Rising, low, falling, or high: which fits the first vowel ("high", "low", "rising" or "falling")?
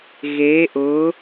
rising